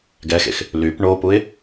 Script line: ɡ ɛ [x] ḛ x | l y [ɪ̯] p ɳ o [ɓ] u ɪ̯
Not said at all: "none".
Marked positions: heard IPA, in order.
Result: x, none, p

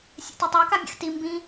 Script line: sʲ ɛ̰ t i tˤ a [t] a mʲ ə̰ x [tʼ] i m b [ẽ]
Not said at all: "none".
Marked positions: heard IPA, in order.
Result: k, t, ĩ

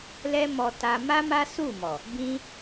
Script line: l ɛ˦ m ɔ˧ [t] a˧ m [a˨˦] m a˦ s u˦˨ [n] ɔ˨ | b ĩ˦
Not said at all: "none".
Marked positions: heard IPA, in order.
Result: t, a˦, m

